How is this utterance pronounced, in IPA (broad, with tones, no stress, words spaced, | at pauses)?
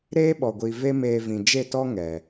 ɾeː˦ɓɔ˨ ɡʷi˨ ve˦meː˧vĩ˨ d͡ʒe˦˨tɔ˦ ŋɛ˨